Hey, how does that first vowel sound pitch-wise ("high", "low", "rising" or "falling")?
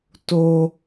high